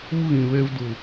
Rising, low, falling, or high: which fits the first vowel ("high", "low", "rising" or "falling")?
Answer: high